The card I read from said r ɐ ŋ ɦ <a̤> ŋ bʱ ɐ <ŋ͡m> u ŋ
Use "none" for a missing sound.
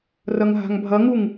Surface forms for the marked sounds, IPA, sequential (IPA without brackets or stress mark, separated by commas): a̤, ŋ